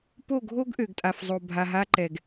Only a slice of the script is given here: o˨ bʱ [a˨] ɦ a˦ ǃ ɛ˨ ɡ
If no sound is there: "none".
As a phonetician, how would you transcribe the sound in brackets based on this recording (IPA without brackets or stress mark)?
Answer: a˨